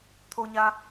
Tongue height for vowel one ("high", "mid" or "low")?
mid